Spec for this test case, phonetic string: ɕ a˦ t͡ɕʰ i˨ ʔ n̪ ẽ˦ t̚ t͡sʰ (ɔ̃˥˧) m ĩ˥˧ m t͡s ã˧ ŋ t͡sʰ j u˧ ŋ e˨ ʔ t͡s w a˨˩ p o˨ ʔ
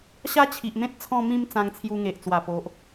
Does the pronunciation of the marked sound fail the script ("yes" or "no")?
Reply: no